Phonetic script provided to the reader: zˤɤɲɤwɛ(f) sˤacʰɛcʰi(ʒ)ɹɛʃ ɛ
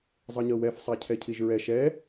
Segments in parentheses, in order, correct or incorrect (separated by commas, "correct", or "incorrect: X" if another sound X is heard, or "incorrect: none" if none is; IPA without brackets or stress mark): correct, correct